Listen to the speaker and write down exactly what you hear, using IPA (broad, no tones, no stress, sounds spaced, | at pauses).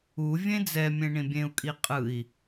u vʲ ẽ d͡z ɛ mʲ ẽ ɳ ĩ bʲ ẽ u̯ kʼ i qʼ ɯ i̯